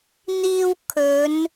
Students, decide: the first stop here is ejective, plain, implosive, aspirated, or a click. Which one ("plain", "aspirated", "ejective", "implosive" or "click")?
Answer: aspirated